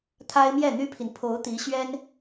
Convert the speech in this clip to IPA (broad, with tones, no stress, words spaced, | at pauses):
t̪ʰa˥ɪ̯ mjɛ˥˩ n̪y˥pʰi˨n pʰo˧˥ʊ̯t̪i˧˥ɕɥɛ˥n